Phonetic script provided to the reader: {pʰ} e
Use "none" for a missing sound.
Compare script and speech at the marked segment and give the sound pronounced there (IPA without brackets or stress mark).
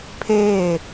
pʰ